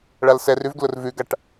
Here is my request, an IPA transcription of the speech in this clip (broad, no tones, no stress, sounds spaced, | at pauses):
ɭ a l s ɛ r ʉ v ɡ l ʊ r v ʉ ɡ a ʈ